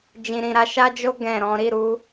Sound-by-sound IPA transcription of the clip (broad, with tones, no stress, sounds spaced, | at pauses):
d͡ʒ ĩ˨ ɾ ĩ˨ ɾ a˨˦ ʃ a˦ d͡ʒ o˦ ɡ ɛ̃˦˨ ɾ ɔ̃˨˦ ɾ i˦˨ ɾ u˨˦